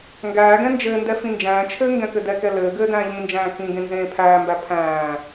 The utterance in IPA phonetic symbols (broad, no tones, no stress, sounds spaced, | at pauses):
ŋ ɡ æː ɡ ɛ̃ n d͡ʒ ɘː n d ɛ f ĩ n d͡ʒ æ̃ː t͡ʃʰ ɘː ŋ ɡ ɛ̃ k ɘ d ɛ k ɛ l ɘː ɡ ɘː d æ̃ː ʎ ĩ n d͡ʒ æ̃ː k ĩ ɡ ẽ n z ẽː pʰ æː m b æ pʰ æ̃ː